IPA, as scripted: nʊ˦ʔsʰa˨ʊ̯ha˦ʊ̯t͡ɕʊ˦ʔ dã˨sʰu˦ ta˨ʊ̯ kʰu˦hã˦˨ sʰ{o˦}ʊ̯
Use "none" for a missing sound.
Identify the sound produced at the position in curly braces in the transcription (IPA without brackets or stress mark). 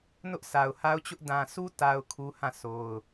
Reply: o˦